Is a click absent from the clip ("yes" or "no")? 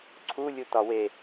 no